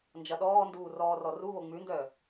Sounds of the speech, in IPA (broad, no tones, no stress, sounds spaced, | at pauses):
n d͡ʒ ɐ ɗ ɔː n d uː r ɔː r ɔ r u β o ŋ͡m ʉ n d œ